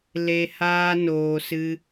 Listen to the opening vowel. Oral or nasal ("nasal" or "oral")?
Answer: oral